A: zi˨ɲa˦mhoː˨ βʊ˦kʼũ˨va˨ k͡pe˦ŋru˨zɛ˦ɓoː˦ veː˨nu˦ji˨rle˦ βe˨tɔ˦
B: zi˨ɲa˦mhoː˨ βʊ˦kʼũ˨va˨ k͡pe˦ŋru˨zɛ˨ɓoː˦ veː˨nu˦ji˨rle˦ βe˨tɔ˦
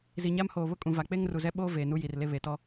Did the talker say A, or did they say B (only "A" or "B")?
A